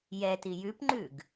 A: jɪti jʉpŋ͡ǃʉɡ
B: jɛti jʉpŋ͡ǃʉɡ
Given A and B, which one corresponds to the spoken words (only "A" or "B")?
B